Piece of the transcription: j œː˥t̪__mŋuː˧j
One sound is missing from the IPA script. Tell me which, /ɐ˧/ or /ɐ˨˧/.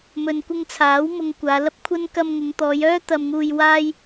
ɐ˧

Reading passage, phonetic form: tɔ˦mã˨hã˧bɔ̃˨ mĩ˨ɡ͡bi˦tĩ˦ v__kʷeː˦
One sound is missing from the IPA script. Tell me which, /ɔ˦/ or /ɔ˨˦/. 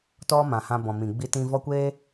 ɔ˦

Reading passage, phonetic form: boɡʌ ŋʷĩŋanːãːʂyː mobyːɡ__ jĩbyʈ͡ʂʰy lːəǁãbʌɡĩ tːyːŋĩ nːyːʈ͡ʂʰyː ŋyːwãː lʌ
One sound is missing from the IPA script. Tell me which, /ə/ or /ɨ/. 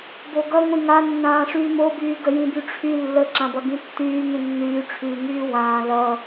ə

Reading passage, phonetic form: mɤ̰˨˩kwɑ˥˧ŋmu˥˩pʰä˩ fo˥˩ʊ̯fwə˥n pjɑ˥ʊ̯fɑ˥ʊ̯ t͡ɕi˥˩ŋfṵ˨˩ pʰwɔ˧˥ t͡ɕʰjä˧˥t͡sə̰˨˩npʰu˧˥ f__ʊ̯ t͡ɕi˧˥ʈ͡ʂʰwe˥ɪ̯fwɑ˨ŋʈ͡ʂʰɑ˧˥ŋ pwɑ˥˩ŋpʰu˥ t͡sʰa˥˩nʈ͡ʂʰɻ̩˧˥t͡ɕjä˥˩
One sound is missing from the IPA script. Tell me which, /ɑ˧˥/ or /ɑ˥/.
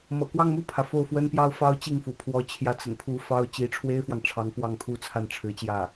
ɑ˥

